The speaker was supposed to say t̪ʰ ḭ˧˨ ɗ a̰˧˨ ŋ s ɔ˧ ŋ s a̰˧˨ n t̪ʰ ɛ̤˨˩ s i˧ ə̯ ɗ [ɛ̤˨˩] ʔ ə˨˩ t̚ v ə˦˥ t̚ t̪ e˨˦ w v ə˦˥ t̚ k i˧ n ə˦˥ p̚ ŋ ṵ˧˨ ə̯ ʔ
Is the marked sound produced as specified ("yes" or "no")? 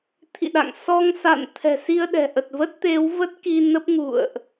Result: yes